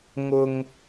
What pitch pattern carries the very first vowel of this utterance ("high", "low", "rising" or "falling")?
low